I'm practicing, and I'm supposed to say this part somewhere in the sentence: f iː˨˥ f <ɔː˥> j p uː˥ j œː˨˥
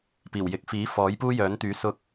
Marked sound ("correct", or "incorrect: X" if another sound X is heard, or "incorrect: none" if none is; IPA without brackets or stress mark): incorrect: ɔː˨˥